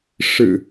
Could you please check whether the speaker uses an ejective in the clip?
no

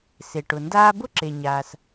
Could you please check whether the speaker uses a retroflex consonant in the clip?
yes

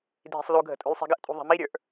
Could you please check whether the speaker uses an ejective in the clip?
yes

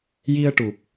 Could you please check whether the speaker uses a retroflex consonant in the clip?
yes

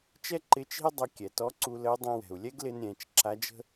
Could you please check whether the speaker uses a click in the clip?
yes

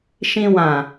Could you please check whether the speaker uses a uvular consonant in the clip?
no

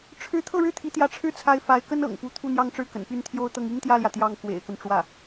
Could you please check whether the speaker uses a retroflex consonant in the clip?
yes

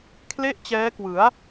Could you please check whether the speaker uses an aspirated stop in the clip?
yes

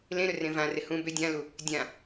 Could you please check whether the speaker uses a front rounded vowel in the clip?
yes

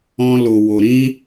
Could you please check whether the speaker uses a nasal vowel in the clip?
yes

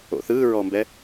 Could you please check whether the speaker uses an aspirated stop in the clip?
no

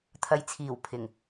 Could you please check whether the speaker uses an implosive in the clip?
no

